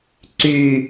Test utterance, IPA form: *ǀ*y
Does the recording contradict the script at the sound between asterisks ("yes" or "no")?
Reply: no